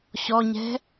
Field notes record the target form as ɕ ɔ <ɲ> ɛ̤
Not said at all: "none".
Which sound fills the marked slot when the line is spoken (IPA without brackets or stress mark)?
ɲ